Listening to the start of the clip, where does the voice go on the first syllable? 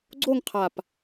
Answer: falling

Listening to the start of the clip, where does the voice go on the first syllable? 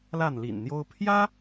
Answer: falling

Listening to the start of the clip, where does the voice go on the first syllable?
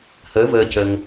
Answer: rising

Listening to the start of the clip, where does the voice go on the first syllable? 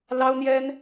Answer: high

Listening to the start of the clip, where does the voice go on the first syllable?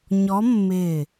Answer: rising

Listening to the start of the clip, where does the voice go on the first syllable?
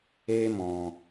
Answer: high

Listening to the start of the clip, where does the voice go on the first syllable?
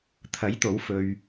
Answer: rising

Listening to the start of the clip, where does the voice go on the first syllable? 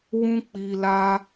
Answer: high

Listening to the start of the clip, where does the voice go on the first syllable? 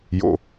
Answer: low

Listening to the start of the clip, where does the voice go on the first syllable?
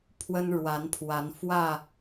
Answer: high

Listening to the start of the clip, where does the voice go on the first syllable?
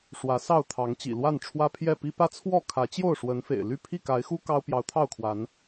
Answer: rising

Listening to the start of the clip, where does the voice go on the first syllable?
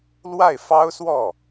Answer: falling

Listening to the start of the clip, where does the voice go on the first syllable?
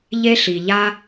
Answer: high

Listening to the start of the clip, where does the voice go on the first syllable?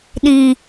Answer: high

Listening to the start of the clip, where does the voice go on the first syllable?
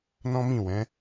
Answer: high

